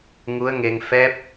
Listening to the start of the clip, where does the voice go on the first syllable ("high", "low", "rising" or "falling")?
rising